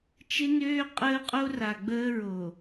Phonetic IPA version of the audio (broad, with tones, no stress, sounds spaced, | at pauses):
t͡ʃ ɪ˦ n øː˦ qʼ əː˦ qʼ o˦ r a˨ ɡ͡b əː˦ ɹ o˨